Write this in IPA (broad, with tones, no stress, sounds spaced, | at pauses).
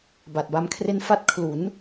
b a˨˩ t̚ b a˦˥ m kʰ r e˥˩ n f a˦˥ t̚ kʰ l u˩˦ n